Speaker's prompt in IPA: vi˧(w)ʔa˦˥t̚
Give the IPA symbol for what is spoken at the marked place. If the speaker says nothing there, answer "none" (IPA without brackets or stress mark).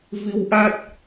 w